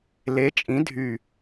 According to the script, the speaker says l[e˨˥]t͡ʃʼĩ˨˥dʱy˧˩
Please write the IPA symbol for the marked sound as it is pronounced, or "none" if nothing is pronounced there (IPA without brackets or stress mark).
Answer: e˨˥